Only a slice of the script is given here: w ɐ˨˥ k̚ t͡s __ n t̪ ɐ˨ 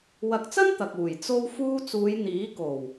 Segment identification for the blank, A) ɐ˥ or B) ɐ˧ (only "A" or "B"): A